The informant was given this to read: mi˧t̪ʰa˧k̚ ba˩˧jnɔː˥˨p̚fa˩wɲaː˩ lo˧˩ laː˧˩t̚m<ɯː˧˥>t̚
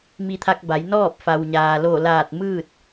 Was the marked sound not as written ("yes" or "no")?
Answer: yes